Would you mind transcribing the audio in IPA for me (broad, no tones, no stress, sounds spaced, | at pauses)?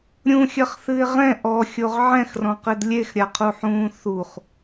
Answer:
ɾʲ ũ xʲ ɐ χ θ ɨ ɪ̯ ʁ ɛ̃ ʔ ɔ xʲ o ʁ ʕ ɛ̃ x r ɔ̃ q ɘ d lʲ e x ɾʲ a qʰ u ħ ũː θ u χ